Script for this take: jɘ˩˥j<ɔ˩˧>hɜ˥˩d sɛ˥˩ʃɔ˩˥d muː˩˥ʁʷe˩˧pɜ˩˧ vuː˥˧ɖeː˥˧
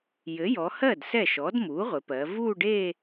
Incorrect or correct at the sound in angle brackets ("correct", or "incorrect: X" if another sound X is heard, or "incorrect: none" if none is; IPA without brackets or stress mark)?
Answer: correct